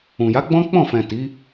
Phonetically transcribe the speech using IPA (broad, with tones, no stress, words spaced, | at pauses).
ũ˨ja˨˦ɡ͡bɔ̃˦ k͡pɔ̃˦˨fɛ̃˨ ti˨˦